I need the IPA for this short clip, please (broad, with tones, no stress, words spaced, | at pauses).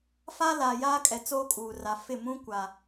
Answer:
fa˦ laː˨jaː˦kʼɛ˨ t͡soː˦kʼuː˨ra˨ fɪ˦˨mũ˦ kʷa˨